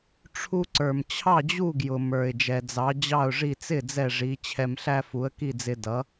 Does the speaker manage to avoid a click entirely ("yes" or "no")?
no